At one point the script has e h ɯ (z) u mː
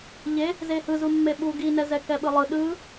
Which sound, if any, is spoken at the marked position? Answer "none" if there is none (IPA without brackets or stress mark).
z